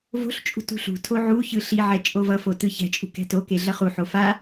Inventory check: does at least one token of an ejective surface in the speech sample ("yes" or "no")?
yes